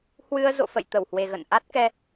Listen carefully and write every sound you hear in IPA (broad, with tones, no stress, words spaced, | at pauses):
hwɨ˧ə̯ zo̰˧˨fə̰˧˨j t̪ə˧˩whwe˨˩ɣə̰˧˨n ʔa˦˥t̚kɛ˧